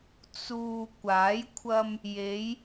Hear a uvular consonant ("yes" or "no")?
no